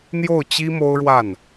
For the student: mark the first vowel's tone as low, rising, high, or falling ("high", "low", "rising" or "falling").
falling